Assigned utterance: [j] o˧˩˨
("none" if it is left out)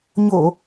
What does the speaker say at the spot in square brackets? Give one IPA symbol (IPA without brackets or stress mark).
ɲ